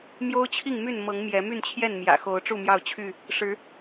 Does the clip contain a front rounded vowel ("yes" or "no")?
yes